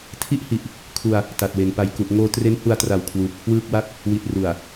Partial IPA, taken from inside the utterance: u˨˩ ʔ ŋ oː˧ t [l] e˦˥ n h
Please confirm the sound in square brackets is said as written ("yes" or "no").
no